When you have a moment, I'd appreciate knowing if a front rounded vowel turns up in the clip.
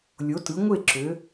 yes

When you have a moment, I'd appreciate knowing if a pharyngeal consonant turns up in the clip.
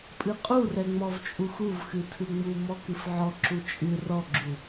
yes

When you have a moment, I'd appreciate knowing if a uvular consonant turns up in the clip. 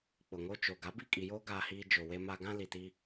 no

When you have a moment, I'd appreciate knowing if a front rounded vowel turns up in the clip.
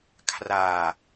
no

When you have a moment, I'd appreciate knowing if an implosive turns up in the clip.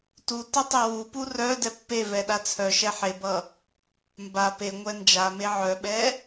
yes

